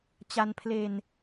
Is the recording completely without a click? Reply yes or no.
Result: yes